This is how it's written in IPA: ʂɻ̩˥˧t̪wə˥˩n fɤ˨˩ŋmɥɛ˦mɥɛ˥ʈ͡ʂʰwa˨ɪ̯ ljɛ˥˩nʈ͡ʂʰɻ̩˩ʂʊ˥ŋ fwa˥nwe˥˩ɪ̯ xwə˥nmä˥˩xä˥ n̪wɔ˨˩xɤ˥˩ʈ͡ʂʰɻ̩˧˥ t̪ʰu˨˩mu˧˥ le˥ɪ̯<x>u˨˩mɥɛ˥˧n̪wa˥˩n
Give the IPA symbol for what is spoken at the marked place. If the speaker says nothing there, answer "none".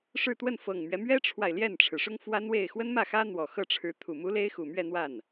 x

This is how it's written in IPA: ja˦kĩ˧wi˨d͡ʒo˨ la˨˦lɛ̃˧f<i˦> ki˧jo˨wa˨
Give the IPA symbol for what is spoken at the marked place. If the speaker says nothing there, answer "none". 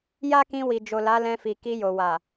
i˨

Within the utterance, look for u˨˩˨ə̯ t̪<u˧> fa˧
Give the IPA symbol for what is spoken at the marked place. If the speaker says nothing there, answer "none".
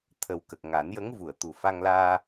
u˨˩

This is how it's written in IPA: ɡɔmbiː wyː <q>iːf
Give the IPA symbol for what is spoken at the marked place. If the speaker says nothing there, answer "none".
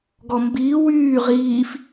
ʁ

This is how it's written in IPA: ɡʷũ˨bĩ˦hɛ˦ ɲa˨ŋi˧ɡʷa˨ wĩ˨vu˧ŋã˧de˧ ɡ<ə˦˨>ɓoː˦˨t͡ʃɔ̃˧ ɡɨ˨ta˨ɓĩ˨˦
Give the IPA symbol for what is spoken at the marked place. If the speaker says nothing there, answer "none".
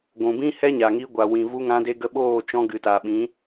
ə˧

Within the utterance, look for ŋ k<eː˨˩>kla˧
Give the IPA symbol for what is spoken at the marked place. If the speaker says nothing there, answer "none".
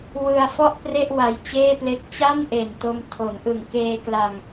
eː˧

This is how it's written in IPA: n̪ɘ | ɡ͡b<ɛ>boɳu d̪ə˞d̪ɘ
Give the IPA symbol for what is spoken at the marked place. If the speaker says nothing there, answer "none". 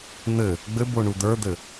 ɘ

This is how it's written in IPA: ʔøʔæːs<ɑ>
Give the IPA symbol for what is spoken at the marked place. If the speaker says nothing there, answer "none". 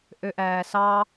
ɑ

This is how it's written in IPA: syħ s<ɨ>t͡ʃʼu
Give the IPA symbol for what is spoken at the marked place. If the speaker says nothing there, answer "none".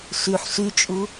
y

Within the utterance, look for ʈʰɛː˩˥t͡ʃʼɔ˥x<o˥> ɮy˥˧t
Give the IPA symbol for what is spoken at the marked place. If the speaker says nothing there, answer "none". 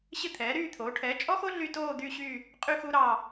o˥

